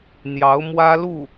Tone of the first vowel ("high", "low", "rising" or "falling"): rising